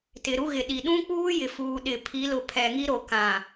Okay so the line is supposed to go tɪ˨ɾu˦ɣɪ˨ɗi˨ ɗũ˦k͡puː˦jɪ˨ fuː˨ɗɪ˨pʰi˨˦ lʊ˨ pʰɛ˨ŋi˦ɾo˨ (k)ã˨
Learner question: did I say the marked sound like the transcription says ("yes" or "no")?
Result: yes